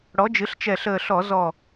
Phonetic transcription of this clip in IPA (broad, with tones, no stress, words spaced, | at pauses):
ɽɔ˩˥d͡ʒɨ˩˥ɬt͡ʃɛ˧˩ɬəː˧˩ ɬɔ˧˩˧ zɔ˧˩